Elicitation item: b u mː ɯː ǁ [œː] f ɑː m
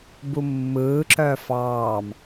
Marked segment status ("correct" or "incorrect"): correct